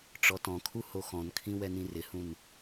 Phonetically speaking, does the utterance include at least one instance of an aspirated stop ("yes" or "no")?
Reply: yes